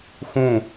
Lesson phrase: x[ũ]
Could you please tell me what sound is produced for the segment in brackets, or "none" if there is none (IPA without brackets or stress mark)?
ũ